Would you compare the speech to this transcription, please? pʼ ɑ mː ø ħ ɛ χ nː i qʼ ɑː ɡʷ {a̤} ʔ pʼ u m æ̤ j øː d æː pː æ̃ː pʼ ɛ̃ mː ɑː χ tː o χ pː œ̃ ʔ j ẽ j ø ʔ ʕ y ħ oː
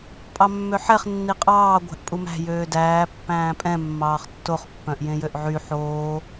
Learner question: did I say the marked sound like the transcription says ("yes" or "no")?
no